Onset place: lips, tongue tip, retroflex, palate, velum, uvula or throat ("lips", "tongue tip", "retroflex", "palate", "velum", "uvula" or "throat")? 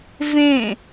lips